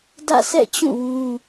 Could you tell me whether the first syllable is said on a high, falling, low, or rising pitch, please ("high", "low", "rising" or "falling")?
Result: falling